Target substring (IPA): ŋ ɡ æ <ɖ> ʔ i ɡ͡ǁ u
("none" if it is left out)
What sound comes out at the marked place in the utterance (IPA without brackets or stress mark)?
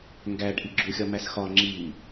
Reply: ɖ